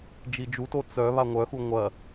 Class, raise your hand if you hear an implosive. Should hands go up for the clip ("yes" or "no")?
no